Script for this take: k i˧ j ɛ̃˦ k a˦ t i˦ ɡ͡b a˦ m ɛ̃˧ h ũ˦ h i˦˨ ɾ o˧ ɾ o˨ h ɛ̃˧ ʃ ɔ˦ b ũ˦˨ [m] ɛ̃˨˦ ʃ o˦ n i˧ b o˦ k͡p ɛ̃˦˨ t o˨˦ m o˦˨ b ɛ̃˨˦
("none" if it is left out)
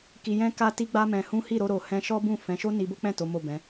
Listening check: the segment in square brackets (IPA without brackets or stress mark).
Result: f